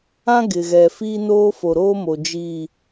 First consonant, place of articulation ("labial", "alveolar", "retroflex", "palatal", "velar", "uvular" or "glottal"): velar